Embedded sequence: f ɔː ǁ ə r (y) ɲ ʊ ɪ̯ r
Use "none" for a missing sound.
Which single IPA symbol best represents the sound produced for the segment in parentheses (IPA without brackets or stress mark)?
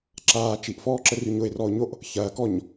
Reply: y